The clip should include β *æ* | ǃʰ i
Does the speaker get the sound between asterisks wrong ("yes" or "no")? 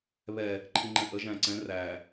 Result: yes